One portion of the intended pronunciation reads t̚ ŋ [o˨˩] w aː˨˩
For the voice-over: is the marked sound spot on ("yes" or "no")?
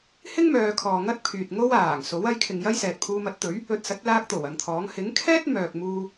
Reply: no